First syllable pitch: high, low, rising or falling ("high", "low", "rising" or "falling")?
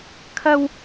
high